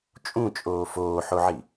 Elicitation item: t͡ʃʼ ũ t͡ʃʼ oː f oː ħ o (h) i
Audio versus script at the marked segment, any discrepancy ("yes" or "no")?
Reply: yes